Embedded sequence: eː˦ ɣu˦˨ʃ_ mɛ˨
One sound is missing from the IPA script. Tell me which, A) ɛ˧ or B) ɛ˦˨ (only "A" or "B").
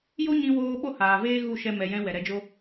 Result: A